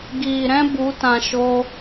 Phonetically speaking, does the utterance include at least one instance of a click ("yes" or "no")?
no